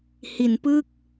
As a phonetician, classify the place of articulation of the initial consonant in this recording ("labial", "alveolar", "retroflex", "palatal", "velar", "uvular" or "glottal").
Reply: glottal